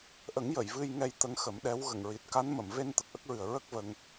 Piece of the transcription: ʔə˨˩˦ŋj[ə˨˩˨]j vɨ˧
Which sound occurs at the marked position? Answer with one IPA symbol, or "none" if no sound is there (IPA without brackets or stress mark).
ə˨˩˨